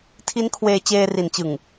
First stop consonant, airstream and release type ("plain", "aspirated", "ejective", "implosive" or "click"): aspirated